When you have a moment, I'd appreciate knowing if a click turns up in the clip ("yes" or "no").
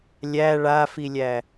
no